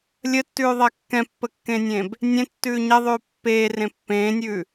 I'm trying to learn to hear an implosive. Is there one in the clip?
no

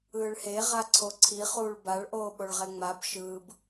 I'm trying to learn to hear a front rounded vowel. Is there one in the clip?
no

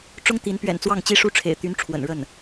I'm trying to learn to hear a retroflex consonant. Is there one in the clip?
yes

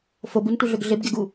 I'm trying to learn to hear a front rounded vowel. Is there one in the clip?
yes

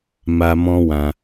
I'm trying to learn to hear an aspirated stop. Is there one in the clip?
no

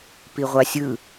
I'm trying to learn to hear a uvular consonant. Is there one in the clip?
yes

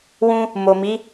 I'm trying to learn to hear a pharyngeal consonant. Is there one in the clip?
no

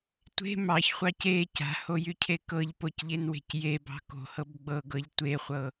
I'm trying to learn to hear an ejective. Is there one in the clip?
no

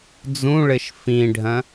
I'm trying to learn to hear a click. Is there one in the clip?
no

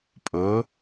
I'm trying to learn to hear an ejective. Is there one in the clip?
yes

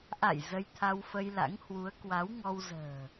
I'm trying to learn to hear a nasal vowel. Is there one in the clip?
no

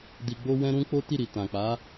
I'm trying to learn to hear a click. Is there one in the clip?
no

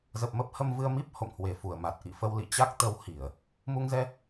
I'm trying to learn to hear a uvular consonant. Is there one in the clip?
no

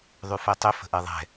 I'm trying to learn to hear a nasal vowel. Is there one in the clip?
no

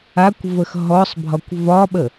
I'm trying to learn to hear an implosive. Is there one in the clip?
yes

